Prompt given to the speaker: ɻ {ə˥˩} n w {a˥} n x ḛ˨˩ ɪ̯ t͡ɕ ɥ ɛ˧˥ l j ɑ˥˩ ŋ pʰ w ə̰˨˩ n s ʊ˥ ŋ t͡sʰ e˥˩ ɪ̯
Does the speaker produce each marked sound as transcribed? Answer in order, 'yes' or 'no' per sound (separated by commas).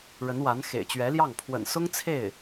no, no